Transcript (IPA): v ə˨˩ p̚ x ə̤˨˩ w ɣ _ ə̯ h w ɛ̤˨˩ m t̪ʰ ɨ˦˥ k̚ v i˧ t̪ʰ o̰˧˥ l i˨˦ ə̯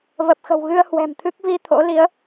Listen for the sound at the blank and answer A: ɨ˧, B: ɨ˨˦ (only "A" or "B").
A